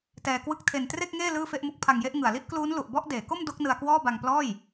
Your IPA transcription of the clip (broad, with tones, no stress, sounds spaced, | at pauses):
t ɛː˧ k w ɯ˥˩ k̚ tʰ e˧ n t r e˥˩ k̚ ŋ eː˥˩ l ɯː˥˩ f e˥˩ ʔ m u˦˥ k̚ pʰ a˧ ŋ j e˥˩ ʔ ŋ ɯ˨˩ a̯ l i˥˩ ʔ k l uː˦˥ n l u˨˩ ʔ b ɔ˥˩ ʔ d eː˩˦ k o˥˩ m d o˦˥ k̚ n ɯ˧ a̯ k w ɔː˥˩ b a˧ ŋ p l ɔː˥˩ j